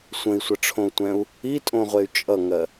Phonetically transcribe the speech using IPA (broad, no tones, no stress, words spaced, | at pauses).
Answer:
sʷə̃i̯sʷʌʈ͡ʂʰõu̯tʷɛ̃u̯ | itʼõʁʷey̯ t͡ʃʼʌŋɜ